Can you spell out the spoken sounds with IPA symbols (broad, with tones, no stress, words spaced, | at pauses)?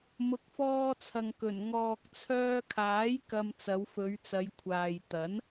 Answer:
mʊ˨˥k̚fɔː˧t͡sʰɐ˨ŋ kɵ˨˩n ŋɔː˨k̚t͡sʰœː˧kʰaː˨˥j kɐ˧m t͡sɐ˨˧wfɵ˨˧ɥt͡sɐ˨˧j kʷʰaː˨j t̪ɐ˨˥n